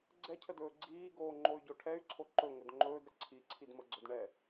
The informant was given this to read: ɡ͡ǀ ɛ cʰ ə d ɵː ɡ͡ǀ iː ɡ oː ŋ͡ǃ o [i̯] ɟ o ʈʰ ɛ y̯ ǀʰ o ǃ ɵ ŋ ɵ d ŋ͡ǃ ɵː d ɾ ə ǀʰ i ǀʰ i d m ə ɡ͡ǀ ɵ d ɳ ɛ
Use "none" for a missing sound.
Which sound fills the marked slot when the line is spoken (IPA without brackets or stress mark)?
y̯